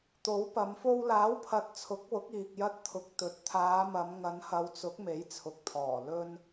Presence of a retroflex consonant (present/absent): absent